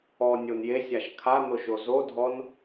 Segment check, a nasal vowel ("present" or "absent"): absent